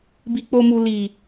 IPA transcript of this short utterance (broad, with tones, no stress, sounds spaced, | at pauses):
b i˨ k͡p o˨ m u˨ l i˨